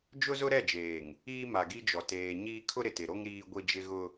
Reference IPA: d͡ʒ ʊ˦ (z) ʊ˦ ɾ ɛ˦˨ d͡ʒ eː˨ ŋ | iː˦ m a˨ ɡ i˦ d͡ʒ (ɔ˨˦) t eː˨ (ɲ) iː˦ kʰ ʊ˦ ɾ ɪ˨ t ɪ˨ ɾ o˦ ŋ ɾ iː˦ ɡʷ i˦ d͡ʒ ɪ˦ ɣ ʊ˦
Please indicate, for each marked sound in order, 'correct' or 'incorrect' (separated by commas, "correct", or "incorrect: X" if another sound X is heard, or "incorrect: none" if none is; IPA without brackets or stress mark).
correct, incorrect: ɔ˨, correct